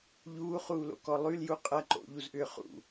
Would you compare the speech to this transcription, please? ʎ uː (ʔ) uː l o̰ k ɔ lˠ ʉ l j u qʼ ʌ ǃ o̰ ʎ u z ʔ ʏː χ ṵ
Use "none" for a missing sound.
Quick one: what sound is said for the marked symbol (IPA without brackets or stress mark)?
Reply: χ